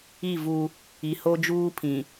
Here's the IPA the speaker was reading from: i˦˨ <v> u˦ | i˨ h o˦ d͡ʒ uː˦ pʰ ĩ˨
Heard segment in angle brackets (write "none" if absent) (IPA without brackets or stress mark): v